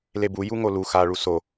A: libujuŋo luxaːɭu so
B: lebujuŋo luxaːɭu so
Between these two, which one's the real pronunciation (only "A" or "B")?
B